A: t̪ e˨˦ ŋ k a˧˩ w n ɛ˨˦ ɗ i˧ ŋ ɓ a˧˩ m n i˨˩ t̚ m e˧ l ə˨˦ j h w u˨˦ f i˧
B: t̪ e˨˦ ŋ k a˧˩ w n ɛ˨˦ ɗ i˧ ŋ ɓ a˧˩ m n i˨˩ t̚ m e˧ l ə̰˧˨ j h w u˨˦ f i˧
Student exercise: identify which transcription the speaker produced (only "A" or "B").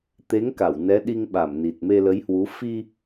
A